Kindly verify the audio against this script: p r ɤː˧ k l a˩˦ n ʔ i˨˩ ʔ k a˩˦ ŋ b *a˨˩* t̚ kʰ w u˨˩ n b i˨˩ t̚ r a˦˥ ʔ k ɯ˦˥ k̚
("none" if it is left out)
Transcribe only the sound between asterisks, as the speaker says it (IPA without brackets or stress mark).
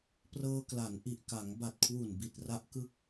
a˨˩